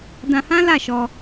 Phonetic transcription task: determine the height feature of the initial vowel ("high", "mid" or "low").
low